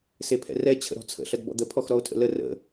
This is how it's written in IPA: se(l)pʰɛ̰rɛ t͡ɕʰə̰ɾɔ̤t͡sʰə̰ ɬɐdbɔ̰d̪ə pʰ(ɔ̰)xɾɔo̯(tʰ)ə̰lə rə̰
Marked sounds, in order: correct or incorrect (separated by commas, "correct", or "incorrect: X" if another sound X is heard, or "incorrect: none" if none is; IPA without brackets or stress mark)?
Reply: incorrect: none, incorrect: ɔ, correct